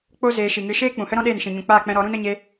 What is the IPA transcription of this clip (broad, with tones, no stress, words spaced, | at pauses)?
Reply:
k͡po˦ zeː˧ʃi˨ŋɨ˧ ʃeː˦k͡pũ˨hə˦ɾɔ̃˦ ɗeː˦˨nʃĩ˨ɲũ˨ k͡paː˦˨k͡pɛ̃˧ɾɔ˨˦ɾũ˦n ə˦ɲe˦